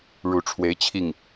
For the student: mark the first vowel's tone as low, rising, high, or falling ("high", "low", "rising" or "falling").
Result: rising